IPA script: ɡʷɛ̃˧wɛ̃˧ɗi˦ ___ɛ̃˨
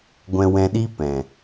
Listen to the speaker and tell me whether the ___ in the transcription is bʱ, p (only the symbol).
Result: p